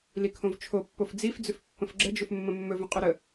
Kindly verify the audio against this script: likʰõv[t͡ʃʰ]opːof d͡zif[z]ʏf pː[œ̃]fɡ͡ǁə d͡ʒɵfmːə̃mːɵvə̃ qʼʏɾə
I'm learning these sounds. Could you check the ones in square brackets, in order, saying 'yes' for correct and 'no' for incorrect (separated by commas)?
yes, no, no